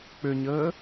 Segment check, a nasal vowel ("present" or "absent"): absent